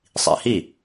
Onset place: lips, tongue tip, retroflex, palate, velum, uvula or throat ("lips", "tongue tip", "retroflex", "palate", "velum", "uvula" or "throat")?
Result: tongue tip